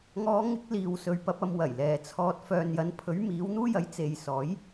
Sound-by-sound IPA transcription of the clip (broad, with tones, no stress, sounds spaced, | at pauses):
ŋ ɔː˨˧ ŋ ɪ˨˥ k̚ l iː˨ w s ɵ˨ ɥ p ɐ˧ p̚ ɐ˧ m w ɐ˨˩ j l ɛː˨ t͡sʰ ɔː˧ t̚ f œː˨ n j ɐ˨˧ n pʰ ɵ˨˥ ɥ m iː˨˥ w n̪ uː˥ j ɐ˨˥ j t͡s e˨ j s ɔː˨˥ j